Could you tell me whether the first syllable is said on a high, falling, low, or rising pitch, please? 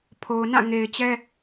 low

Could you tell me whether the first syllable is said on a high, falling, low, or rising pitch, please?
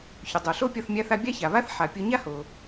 low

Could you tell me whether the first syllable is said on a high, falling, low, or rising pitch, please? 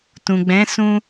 low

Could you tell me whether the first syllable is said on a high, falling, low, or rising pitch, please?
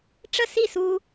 falling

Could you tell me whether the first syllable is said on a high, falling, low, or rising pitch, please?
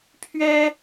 high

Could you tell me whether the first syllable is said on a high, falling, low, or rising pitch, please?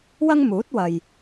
high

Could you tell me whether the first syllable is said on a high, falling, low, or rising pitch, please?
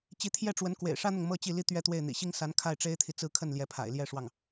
rising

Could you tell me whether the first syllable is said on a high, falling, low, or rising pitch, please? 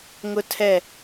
high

